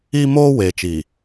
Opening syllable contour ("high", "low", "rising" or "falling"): high